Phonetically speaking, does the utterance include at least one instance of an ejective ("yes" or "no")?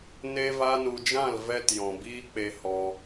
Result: no